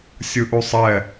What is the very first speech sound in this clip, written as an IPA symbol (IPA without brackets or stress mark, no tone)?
sʲ